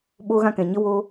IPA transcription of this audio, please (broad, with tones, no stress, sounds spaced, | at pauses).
ɓ oː˧ ɣ ã˧ k ɛ̃˨ ɲ ə˧ w o˦